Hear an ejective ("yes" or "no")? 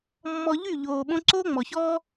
no